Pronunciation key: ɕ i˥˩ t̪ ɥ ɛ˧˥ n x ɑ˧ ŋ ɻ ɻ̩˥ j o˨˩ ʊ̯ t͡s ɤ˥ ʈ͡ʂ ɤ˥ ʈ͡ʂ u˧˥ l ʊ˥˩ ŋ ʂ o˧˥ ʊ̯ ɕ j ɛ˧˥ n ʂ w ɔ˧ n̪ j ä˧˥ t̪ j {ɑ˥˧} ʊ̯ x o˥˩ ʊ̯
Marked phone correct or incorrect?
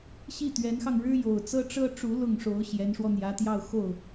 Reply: correct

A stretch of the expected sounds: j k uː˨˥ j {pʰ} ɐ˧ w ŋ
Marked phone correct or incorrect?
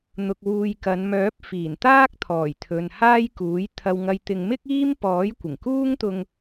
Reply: incorrect: t̪ʰ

